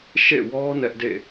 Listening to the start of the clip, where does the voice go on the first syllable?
falling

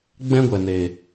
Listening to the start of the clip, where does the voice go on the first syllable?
high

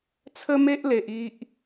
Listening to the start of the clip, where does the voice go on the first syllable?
high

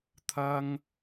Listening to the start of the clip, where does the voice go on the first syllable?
high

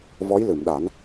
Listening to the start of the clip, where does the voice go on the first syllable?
rising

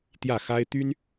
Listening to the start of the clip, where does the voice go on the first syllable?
falling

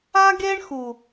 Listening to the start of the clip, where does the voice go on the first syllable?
high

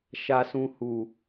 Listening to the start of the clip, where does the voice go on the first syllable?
low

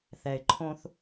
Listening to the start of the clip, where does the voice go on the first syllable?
low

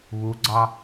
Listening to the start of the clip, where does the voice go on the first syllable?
rising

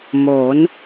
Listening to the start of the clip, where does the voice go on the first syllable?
rising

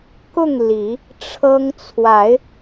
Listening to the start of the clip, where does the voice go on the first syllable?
falling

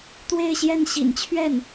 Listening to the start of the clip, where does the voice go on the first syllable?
falling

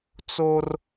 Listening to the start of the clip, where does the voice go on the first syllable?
high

